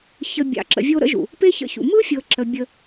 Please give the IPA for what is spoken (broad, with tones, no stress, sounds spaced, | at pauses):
ç ə˧ bʲ ɑ̰˨ ǁ ə̰˨ vʲ o˧ ɾ ə̰˦ ʒ ṵ˨ | p e˦ ç ə̰˧ ç ṵ˨ m ɯ˦ fʲ ɤ˨ ǁ ə˨ bʲ ə˧